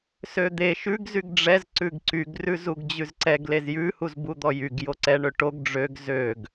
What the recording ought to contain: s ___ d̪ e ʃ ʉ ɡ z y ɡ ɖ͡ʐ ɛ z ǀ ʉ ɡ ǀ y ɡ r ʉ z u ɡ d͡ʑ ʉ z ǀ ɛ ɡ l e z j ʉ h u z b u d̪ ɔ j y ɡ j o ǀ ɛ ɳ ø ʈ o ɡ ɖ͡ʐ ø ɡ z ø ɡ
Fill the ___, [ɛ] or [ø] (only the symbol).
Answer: ø